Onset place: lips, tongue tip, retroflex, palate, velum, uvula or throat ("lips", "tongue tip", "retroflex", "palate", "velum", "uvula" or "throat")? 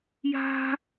palate